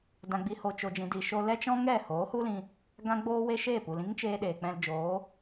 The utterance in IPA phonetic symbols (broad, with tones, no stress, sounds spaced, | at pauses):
d ã˧ ɡ͡b i˧ h o˧ t͡ʃ o˧ d͡ʒ ĩ˧ d i˧ ʃ o˦ l ɛ˦ t͡ʃ ɔ̃˦ ŋ ɛ˦˨ h oː˨˦ h u˦ l ĩ˧ | ɡ ã˦ ɡ͡b oː˦ w e˦ ʃ eː˦˨ p u˨ l ĩ˦ ŋ t͡ʃ eː˧ ɗ eː˨ k͡p ɛ̃˧ l d͡ʒ oː˨˦